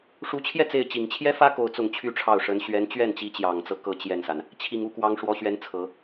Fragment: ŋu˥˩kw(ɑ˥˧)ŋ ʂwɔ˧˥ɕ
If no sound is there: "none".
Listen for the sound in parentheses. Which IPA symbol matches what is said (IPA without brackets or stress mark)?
ɑ˧˥